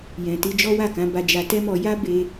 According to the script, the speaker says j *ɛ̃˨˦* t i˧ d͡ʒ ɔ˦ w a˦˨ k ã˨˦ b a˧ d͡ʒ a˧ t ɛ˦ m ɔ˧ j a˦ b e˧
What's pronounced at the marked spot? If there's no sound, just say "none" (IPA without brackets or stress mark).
ɛ̃˨